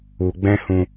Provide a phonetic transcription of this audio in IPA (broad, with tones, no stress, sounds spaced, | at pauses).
u˧ ɡ͡b ɛ̃˦ h ũ˧